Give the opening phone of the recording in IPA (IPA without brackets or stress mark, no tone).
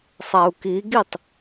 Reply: sˤ